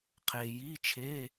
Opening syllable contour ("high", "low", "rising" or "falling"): low